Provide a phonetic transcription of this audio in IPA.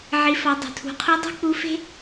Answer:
ʕi˩˧fɒ˩˧ dˤo̤˩tʰṳ˩˧qʰu˧˥ dˤi̤˥k͡pu˧˥fe̤˥

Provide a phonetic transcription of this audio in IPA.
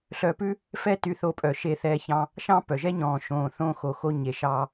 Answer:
ɬœ˧pʉ˥ | fɛ˥ty˧ θo˧pʼœ˩ʃe˧θɛː˧ çɑ̃˧ | ʃɑ̃˥pœ˩ʒɛ˥ ɲɔ̃ː˩ ʃõː˩ θõː˧xo˩xo˧ ɲe˩ ʃɑ˧

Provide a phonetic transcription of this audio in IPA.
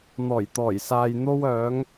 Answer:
n̪ɔː˨˩jt̪ɔː˨˩jsaː˨j n̪o˧wœː˨˧ŋ

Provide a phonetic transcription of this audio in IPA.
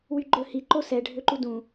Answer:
wyɡ͡ǃɵ hi ǃosɛ ɖʱøǃudũ

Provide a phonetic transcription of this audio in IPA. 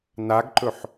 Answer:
naɡǃɵħ

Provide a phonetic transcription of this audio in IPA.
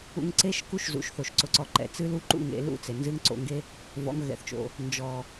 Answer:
ṵ˧ŋǀe˦ʃ ku˦ʃzṵ˨ʃθo˨ʃ ǀʊ˨ǀɔ˨ǃɛ̰˨ t͡sɨ˦lu˦ǃṵ˦˨ŋ ḛ˧lṵ˦˨t͡se˨nzɨ˦ŋ ǀo̰˧ŋɡe˦ | vɔ̰˨˦ŋɣɛ̰˨θt͡ʃo̰˨ | nd͡ʒɔ˨

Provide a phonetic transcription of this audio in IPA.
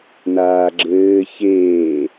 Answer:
naːɡ͡ǁɘː çeː

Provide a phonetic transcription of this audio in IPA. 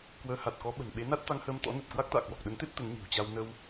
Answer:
kwəː˨˦ha˨˩t̚kɔ˨˦ ɓə̤˨˩nɓe˨˦ na˦˥t̚t̪a˧ŋhəː˧m t̪ɔ̰˧˥nə˨˩t̚kwa˦˥k̚t̪a̰ː˧˨ kwɔ˨˩k̚ɗə˨˦nt̪e˦˥p̚ t̪ə˨˦nɲi̤˨˩wt͡ɕa˧w nə˧w

